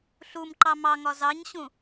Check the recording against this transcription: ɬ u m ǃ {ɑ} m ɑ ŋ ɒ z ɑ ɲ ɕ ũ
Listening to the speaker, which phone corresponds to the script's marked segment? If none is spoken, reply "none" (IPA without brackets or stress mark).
ɑ